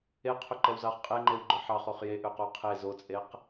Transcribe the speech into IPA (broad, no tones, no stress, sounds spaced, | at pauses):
e qʰ ø ǃ ɛ w z ɑ χ qʼ e ŋ͡ǃ e w ɡ͡ǃ œ ħ ɑ χ o χ j e ʔ ø q o qʰ e z o t͡sʼ e q